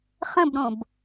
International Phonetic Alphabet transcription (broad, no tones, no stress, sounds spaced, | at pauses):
χ ə̃ b ɾ õ b